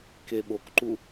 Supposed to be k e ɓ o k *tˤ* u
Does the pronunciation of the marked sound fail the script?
yes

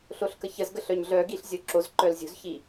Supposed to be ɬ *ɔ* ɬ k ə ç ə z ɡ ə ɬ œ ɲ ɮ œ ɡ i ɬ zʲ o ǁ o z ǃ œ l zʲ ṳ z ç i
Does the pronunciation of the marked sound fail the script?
yes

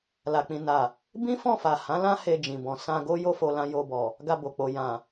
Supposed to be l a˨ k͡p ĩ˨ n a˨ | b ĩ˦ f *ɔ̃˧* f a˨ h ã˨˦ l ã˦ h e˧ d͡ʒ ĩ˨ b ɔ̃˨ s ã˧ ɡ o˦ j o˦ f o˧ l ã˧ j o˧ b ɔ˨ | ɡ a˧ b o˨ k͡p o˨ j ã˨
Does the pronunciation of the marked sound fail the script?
yes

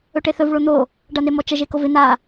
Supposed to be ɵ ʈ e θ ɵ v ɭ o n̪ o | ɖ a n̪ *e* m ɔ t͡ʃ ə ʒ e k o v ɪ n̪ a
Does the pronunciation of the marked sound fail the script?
no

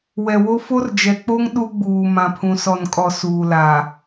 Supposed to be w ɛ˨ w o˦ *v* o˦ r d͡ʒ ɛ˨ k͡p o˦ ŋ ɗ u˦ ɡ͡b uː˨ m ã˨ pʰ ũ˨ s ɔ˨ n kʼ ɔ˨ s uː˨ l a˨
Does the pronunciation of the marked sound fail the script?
yes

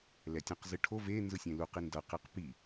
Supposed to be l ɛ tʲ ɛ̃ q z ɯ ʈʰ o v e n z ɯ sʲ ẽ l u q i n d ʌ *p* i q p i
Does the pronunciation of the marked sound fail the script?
yes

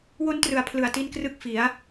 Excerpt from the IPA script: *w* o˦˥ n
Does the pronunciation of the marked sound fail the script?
no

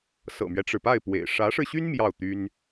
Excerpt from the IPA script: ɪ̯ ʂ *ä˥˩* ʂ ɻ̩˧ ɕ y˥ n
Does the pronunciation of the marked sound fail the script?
yes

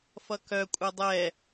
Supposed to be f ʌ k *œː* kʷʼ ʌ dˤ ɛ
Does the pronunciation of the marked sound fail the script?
yes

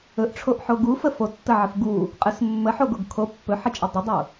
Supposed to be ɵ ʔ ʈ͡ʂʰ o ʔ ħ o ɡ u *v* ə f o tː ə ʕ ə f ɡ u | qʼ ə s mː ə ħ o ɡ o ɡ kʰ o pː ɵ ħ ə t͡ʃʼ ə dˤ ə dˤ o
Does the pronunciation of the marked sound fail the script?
yes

